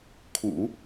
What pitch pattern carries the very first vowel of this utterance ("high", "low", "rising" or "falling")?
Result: low